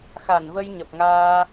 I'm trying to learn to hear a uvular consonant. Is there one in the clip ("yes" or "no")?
no